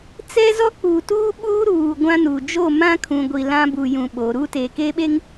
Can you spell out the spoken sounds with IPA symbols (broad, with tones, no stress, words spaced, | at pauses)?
t͡sɛ˦zɔ˦ k͡pu˨tuː˦ɓuː˦ɾuː˨ ɡʷã˦nu˨ d͡ʒo˦˨mã˦kʰũ˨ɡʷi˨ lã˦bu˨jũ˨ ɓo˨˦ ɾuː˦teː˨keː˦ɓe˦ŋ